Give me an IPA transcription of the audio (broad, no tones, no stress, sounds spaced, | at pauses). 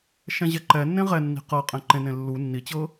ʃ ɛ̃ ʑ ɛ ǃ ɛ nː ẽ ʁ ɛ nː i̤ q ɤ qʼ ɛ̃ ǃ ẽ n ẽ lː u nː i t͡ɕ ɤ